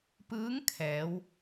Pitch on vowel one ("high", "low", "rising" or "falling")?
rising